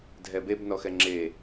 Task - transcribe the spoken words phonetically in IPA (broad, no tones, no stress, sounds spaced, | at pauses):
dʱ ɛ b e b n ɔ x ɛ ŋ͡ǁ e